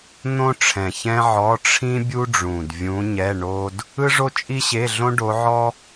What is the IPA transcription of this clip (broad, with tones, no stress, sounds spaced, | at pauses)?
n̪ õ˥ ʈ͡ʂʰ ɛ̃˨˩ ç ɛ̃˥ ʕ ɔ˧˥˧ ʈ͡ʂʰ ĩ˥ bʲ u˥ ɖ͡ʐ ũ˨˩ d vʲ ũ˧˥ ɲ ɛ˧˥˧ ɳ o˥ d | ɯ˥ ʐ o˥ t͡ʃʼ i˥ ɕ e˧˥˧ ɮ õ˥ ɖ o˧˥ ʕ ɔ˥